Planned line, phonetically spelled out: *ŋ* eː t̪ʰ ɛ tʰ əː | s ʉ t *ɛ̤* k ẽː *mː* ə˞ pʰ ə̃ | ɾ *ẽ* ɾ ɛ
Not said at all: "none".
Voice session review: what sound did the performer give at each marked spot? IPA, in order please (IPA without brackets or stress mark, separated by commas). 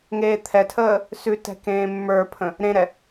ŋ, ɛ̤, mː, ẽ